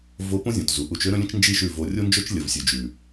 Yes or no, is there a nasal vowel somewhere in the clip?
yes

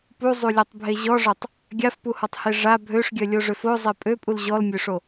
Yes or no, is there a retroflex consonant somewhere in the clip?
yes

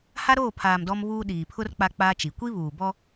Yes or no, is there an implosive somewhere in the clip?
yes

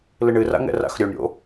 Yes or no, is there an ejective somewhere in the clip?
no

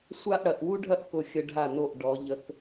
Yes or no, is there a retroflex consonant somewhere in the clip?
yes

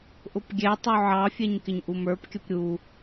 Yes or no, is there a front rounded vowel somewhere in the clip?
no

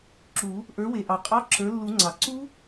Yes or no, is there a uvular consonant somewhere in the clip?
yes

